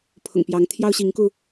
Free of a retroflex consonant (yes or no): yes